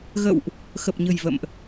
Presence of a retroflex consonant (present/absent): absent